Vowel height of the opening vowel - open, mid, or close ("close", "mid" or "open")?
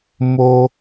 mid